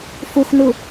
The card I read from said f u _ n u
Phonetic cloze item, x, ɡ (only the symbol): x